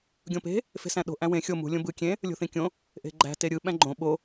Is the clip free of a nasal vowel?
no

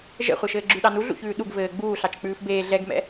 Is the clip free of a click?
no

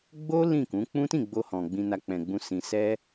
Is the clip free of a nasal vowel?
no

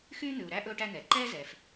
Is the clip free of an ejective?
yes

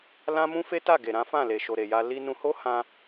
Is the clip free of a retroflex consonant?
yes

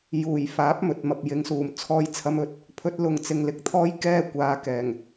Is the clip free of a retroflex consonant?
yes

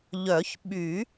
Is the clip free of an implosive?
no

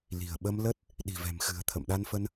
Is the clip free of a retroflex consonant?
yes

